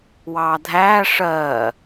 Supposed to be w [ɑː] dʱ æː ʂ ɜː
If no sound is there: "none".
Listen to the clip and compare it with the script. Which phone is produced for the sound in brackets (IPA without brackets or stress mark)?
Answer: ɑː